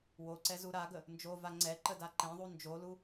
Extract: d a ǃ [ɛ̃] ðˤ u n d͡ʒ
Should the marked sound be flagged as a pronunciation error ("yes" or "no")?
no